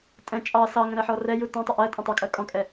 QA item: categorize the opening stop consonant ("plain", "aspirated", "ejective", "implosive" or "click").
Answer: ejective